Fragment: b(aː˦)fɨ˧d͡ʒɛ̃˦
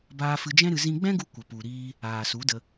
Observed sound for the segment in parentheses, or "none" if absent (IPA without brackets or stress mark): aː˧